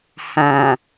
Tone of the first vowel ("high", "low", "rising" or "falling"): low